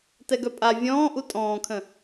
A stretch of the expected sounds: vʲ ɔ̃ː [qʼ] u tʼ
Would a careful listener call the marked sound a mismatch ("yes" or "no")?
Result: yes